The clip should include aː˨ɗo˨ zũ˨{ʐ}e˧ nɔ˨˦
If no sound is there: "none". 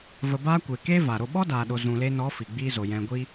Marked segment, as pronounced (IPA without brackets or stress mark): l